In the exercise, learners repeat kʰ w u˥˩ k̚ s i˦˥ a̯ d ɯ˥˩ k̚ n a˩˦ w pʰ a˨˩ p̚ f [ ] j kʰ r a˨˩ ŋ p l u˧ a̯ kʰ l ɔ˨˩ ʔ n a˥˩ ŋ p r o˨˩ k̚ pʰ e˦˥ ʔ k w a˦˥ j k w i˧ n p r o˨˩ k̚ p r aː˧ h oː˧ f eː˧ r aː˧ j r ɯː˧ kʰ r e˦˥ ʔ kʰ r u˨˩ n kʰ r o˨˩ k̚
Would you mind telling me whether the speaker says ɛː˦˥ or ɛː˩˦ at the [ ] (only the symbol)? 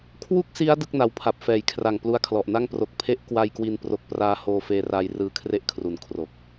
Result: ɛː˩˦